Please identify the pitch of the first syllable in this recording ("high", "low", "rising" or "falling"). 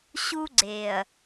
high